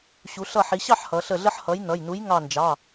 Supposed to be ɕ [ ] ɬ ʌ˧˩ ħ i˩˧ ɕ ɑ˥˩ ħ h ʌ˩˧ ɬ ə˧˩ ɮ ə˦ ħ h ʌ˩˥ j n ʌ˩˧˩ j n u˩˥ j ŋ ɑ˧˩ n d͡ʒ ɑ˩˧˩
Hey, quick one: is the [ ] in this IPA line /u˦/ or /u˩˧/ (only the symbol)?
u˩˧